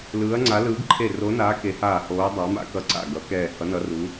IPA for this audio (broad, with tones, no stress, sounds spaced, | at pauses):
l ɯː˨˦ ɐ̯ ŋ͡ǀ a˨˦ l ɯː˨˦ ɡ ǃʰ e˧˩ r o˨˦ n aː˨˦ k e˨˦ h aː˧˩ h oː˨˦ dˤ a˨˦ m a̰˨˦ k ʌ˧˩ ǀ a̰˧˩ ɡ ʌ˨˦ k ɛː˧˩ h ʌ˨˦ n ʌ˨˦ r u˨˦